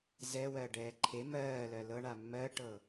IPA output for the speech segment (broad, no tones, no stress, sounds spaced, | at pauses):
z ɛ w ɜ ɖ ɛː ǃʰ e m ɜː l ɜ l ɤ ɳ a mː ɜ ʈ ɤ